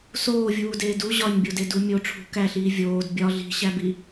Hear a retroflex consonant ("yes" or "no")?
yes